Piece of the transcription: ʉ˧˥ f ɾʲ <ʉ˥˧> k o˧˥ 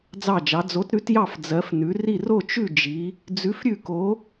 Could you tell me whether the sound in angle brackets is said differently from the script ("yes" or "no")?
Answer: no